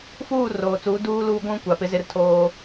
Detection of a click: absent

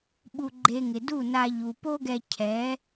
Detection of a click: present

